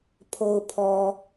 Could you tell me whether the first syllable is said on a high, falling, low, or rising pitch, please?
low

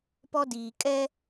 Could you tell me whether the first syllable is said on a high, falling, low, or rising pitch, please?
high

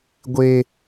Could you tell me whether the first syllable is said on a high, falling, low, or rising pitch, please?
high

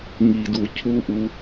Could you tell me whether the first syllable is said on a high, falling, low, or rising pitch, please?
low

